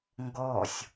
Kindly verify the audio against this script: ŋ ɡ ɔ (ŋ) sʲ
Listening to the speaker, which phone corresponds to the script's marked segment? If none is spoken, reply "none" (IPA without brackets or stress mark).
none